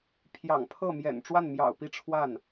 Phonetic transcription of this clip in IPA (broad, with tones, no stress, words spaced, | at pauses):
pʰjɑ̰˨˩ŋ pʰɤ˥˩mjɛ̰˨˩nʈ͡ʂwa˥˩nmjɑ̰˨˩ʊ̯ pi˥˧ʈ͡ʂʰwa˥˩n